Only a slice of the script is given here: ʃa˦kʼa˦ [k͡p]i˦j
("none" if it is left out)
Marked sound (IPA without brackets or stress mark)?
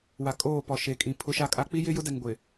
k͡p